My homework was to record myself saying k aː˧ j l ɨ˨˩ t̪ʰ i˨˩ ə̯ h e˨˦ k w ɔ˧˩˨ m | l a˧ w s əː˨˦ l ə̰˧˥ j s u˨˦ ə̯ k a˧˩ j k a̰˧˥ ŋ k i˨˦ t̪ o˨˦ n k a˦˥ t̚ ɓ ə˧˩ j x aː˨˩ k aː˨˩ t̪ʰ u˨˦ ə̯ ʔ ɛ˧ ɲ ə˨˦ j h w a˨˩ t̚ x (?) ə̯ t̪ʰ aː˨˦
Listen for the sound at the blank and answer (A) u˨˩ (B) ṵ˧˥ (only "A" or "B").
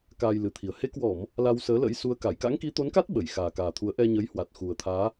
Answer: A